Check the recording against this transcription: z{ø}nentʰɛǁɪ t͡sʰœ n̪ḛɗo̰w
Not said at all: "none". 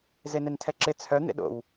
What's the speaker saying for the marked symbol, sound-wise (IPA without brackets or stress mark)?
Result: e